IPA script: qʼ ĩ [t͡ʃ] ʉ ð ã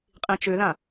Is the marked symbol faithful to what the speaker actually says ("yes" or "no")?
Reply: yes